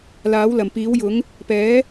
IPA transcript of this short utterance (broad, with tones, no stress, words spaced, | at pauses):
laː˨˥wlɐ˨˩m piː˨˥wjʊ˨˥ŋ | pɛː˨˥